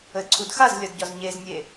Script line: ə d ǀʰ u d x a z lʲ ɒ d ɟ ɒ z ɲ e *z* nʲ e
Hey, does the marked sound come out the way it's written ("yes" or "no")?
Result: yes